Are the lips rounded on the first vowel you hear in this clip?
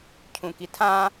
yes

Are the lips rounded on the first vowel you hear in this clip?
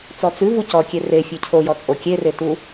yes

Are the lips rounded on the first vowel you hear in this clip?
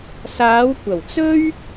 no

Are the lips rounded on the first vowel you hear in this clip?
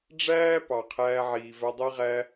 no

